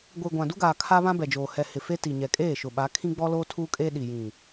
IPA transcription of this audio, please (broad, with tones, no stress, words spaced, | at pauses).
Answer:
ɡʷi˨ ɡʷã˨du˦ɡaː˨ kʰa˦βã˦bɛ˨d͡ʒoː˨ hɛ˨ hɪ˨ fe˦ti˨ɲɛ˨ kʼeː˦˨ʃʊ˨ɓa˨˦ kʰĩ˦ɡ͡bɔ˦loː˦ tʰuː˦kʼeː˦ ɗi˨jĩ˨